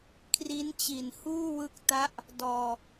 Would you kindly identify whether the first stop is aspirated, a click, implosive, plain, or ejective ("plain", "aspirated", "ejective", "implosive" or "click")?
aspirated